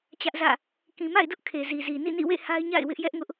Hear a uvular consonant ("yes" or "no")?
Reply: no